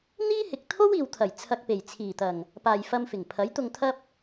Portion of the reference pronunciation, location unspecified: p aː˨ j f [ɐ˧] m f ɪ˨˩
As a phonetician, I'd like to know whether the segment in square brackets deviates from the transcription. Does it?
no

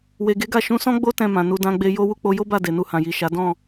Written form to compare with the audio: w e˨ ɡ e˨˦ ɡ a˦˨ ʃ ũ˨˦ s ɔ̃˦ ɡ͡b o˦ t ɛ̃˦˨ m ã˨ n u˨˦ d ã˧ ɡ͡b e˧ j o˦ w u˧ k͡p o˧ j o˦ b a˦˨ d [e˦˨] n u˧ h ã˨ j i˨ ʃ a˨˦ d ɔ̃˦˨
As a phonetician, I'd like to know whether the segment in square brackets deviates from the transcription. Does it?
yes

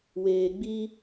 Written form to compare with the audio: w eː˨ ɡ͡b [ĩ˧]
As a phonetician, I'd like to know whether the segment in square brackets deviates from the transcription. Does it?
yes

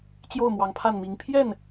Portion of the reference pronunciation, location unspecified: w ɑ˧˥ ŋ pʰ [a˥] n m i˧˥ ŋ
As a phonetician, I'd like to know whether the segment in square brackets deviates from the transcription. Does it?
yes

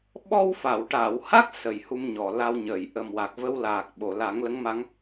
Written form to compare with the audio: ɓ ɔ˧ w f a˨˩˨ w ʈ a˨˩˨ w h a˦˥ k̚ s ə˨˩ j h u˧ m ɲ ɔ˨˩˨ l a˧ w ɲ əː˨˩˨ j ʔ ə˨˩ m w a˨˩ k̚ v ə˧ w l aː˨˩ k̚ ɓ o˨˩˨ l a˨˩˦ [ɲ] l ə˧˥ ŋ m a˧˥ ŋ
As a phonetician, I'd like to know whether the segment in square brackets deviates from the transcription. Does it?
yes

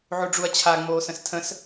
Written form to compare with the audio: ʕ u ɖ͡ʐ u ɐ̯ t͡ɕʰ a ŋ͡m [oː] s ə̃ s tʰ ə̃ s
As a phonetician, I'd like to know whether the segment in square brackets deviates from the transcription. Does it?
no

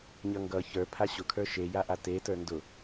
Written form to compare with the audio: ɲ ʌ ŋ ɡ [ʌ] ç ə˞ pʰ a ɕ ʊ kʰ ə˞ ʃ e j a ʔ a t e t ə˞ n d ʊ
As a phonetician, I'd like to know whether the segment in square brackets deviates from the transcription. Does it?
no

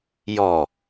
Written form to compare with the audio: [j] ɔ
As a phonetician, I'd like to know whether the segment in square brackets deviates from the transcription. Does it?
no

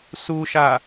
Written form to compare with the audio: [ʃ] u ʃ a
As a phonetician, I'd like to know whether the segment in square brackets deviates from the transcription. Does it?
yes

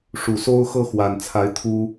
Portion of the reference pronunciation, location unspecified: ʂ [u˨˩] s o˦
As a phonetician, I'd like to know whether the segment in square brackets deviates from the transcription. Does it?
no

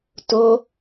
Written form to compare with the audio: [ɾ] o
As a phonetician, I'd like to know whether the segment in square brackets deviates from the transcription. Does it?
yes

